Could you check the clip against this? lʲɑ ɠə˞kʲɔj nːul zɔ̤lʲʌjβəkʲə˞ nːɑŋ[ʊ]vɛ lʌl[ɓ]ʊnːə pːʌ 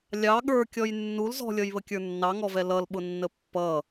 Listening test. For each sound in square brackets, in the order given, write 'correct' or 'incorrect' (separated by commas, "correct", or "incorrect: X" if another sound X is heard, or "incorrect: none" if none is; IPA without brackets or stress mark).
incorrect: ɔ, correct